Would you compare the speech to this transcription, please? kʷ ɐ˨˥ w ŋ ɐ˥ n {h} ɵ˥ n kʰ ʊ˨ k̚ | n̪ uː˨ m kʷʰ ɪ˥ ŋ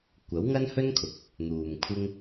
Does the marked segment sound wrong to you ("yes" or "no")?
no